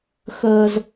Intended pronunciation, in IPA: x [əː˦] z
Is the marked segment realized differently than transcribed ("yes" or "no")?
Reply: no